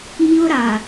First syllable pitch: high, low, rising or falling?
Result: high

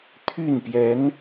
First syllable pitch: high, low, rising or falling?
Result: falling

